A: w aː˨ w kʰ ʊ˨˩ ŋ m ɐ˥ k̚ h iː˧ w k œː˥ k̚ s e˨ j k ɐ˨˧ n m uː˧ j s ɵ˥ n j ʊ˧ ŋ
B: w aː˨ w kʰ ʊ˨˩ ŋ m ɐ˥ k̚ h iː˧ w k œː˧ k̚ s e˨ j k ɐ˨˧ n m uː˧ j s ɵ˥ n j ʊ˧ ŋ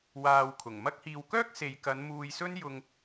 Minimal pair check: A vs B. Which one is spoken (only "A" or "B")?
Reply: A